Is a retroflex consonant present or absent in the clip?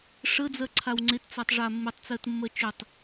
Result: present